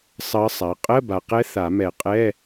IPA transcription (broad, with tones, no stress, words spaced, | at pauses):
sˤɜ˧˥sˤa˩˥ qʼɜ˧˥˧ba˨˩qɛ˧˥ θa˨˩˦mɛ˨˩˦qʼɛ˧˥˧